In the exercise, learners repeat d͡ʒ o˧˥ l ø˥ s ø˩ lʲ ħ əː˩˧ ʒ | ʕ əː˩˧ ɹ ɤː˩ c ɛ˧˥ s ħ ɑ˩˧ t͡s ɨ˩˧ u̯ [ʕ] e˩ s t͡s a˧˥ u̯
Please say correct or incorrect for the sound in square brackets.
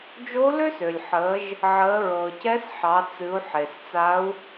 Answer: incorrect